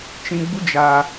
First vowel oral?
no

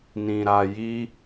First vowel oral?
no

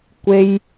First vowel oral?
yes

